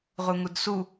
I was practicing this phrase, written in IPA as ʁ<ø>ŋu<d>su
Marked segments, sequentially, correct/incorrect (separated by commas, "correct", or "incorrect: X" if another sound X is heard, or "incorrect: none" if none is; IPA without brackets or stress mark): incorrect: u, correct